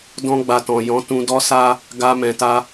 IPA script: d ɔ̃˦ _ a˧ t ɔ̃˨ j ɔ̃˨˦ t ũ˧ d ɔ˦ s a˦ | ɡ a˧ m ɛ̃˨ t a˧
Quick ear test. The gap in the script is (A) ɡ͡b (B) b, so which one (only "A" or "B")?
A